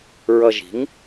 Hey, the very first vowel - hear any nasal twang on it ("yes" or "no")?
no